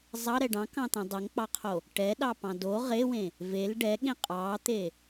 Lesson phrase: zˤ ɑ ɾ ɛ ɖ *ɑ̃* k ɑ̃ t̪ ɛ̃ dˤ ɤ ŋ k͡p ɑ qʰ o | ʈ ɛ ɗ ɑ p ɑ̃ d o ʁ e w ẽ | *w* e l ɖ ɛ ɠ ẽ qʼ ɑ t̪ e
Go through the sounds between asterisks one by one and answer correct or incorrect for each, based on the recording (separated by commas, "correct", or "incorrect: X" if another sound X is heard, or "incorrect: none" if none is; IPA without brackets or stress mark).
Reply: correct, incorrect: v